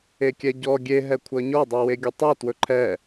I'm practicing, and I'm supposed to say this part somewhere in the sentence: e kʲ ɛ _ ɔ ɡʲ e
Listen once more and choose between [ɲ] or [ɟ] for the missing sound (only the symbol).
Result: ɟ